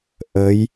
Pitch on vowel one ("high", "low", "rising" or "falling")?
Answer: rising